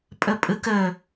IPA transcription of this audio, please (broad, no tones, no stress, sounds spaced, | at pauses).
pʼ ɘ pʼ ɨ k ɘ